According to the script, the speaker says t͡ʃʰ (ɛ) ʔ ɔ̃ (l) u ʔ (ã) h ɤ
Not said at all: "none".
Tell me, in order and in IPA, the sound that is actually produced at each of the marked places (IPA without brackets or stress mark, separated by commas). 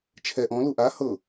ɛ, l, a